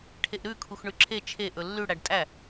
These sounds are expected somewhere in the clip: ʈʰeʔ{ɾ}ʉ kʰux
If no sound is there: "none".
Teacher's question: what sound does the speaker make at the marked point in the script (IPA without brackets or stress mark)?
ɾ